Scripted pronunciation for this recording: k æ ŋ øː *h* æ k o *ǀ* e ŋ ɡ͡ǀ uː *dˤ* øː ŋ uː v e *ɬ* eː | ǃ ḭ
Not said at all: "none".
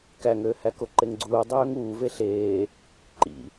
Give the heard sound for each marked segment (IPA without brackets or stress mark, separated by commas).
h, ǃ, dˤ, ɬ